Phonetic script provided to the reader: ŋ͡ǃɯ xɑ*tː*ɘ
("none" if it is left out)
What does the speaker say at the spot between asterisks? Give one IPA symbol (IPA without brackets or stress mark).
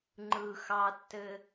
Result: tː